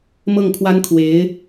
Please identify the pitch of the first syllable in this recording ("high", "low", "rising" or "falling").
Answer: falling